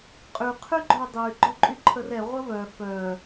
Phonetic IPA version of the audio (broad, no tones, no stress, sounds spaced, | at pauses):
qʼ y qʰ y ɡ͡ǃ œ dˤ y ɡ͡ǃ œ ǃʼ y ǃʰ ə r ɛ ʁʷ ə v œ f œ